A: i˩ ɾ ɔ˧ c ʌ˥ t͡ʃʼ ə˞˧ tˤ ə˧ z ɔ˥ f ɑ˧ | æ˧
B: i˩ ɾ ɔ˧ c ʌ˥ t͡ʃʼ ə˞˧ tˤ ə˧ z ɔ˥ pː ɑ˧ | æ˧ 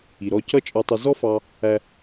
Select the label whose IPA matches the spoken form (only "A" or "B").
A